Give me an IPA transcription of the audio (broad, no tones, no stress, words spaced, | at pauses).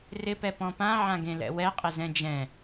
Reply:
rɪpɛ pɔ̃pã ʕãɡẽlɛ̰wɛ qʼɪzɛ̃d͡ʒɛ̃